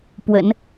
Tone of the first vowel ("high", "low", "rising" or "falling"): low